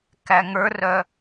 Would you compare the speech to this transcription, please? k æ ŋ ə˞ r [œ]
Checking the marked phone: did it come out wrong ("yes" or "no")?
no